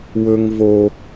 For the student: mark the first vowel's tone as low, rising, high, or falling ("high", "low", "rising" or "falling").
high